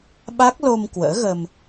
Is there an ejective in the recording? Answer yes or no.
no